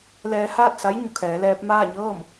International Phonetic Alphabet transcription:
lɛː˧ haː˥˨t̚sa˧˥j ɲu˧˩kʰɛː˩˧lɛː˧p̚ maː˥˨ɲɤː˥˨m

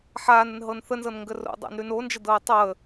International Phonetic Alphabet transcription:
ħaːnənɦɤn θənzɤnŋɡə ro̰dˤa̰nɾʉn ond͡ʒədɤː tˤɤə̯

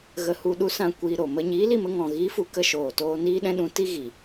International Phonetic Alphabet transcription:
ɣə˧ hu˧ ɗu˦sã˦˨kʷiː˧ ɾo˨mə˦ ɲiː˨˦li˦˨mə˧ ŋɔ̃˨ɣi˨˦fu˨ kə˦˨ʃoː˨toː˧ niː˦ɗɛ̃˦ɗũ˧ ti˦ɣi˨

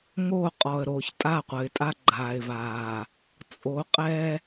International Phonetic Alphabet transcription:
ŋo˦˨qʼɔ˨ə̯ɾo˨ç tʼa˦˨qʷɘ˨ɪ̯tʼa˦ ɡ͡ǃaː˨ɪ̯vaː˨ | t͡sʼo˨˦qʼɛ˦

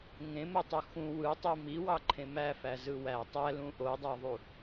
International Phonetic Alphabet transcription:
ŋẽmutˤo xũ wɯtˤi miwɑǃʰẽ mæfæzɯ wæ tˤælũ ʔodˤɑðˤu

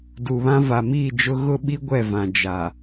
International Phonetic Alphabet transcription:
du˨βã˦ va˨miː˦˨d͡ʒʊ˦ ɣʊ˦ɓi˦ ɡʷɛ˦˨vã˨ d͡ʒa˨

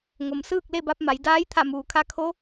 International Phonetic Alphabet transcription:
ŋo˩msɯː˥˨k̚le˥˨ba˧p̚ ma˩˧j daː˧˥jt̪ʰa˧˩ muː˩kʰa˧kʰo˧˥

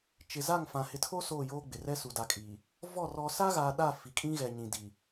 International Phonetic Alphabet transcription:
t͡ʃɪ˨za˦˨ŋ fã˨ hɪ˨tʰo˦ soː˦˨joː˦ɡ͡bɪ˨rɛ˦ su˨da˨kʼiː˨ | vɔ˦˨ rɔ˨sa˦ɣa˨ ɗa˦˨ fi˨kʼĩ˦ɣɛ˨ ɲĩ˨di˨

